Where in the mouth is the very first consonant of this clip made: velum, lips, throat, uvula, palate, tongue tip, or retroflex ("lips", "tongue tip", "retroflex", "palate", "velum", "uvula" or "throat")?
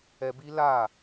lips